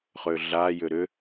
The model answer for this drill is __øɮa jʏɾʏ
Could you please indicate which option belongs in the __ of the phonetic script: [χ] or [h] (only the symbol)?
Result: χ